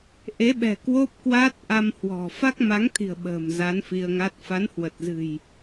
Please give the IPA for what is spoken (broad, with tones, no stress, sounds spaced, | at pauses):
ʔ e˨˦ ɓ ɛ̤˨˩ k w o˦˥ p̚ k w a˦˥ t̚ ʔ a˧ m h w ɔ̤˨˩ f a˦˥ k̚ m a˨˦ ŋ t̪ʰ i̤˨˩ ə̯ ɓ ə̤ː˨˩ m z a˨˦ n f i˧ ə̯ ŋ a˦˥ t̚ f a˨˦ n h w ə˨˩ t̚ z ɨ̤˨˩ j